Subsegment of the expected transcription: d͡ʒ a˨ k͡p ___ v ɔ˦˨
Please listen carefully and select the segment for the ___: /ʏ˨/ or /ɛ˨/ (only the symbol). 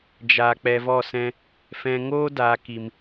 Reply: ɛ˨